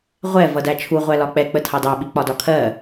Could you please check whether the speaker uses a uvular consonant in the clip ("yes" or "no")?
yes